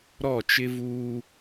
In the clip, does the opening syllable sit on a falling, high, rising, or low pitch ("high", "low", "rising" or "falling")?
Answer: falling